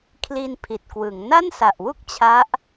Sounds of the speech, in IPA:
kʰ l i˧ n pʰ i˨˩ t̚ k w ɯ˩˦ ŋ n a˥˩ n s a˨˩ ʔ w u˥˩ k̚ t͡ɕʰ a˦˥ ʔ

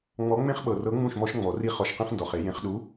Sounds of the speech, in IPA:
ŋ͡m ɔ˨˥ ŋ͡m ẽ˦ χ ɓ ɤ˨ r ɤ˨˥ ŋ͡m ũ˥˩ ʃ m ɔ˦ ʃ ŋ͡m ɔ˨˩˦ r i˥˩ χ ɔ˨˥ ʃ q ĩ˦ χ n d ɔ˨ χ e˨˩˦ j ẽ˨˩˦ χ ɗ u˨˥

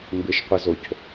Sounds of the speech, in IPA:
m b ɪ ʃ qʷ ə z o c

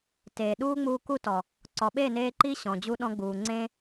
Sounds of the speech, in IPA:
t eː˨ ɗ uː˦ ŋ͡m uː˧ k u˦ t ɔ˨ | ǀ ɔ˨ ɓ e˦˨ n eː˧ ǃ i˦ ɕ ɔ̃˨ d͡ʑ u˧ ɗ ɔ̃˧ ɡ͡b uː˨ ŋ͡ǀ ẽ˦

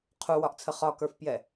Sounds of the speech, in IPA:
qʰ u w ɒ ʔ t͡sʰ ə χ ɒ k ə˞ f p j ɛ

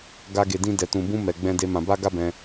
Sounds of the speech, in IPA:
ɡ a˦ ɡ e˧ d ĩ˦ d ɛ˧ t ũ˧ b ũ˦ m ɛ˧ ɡ͡b ɛ̃˦ d e˦ m ã˧ b a˦ ɡ a˦ b ɛ̃˧

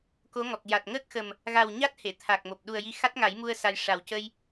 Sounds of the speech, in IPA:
k o˧˥ ŋ ɔ˨˩ k̚ j a˨˩ t̚ ŋ əː˦˥ k̚ x ə˨˩ m | ɣ a˨˩ w ɲ a˦˥ t̚ h e˨˩˨ t̪ʰ a˨˩ k̚ m o˨˩ p̚ ɗ u˨˩ ə̯ j i˧˥ x a˦˥ t̚ ŋ a˨˩˦ j m u˧ ə̯ s a˧ j ʂ a˨˩ w c ə˧ j

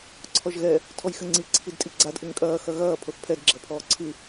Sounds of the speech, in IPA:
ǀʰ ɔ ʒ ɣ ɛ | tʰ ɔ j x ɘ ŋ͡ǀ i ǀʰ i d tʼ i ɡ͡ǀ a d ʔ ɘ ŋ kʼ ɐː x ɐ ɣ ɐː pʰ o θ pʰ ɛ d ɡ͡ǁ ɐ pʰ ɔː ǀʰ ɨ

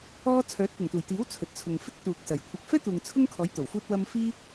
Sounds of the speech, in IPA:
ɔː˥ t͡sʰ œː˨˥ t̚ p ʊ˨˩ ŋ t̪ uː˨˩ j t̪ iː˨˥ w t͡sʰ ɵ˨ t̚ t͡sʰ ʊ˨ ŋ f ɪ˥ k̚ t̪ uː˨ k̚ s ɐ˨˩ j kʷʰ ɐ˧ k̚ f ɛː˥ t̪ uː˨ ŋ t͡sʰ ʊ˥ ŋ kʰ ɔː˨˥ j t̪ o˨˩ w f uː˥ t̚ w ɐ˥ m f iː˥

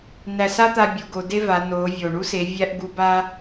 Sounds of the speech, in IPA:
n æ˧ s a˥ t̪ a˧ bʲ u˩˧ ɡ o˩˧ d e˥ v a˩˧ n o˩˧ vʲ o˩ ɳ u˥ s e˩˧ vʲ æ˥ ʔ ɡ u˧˥ b a˥

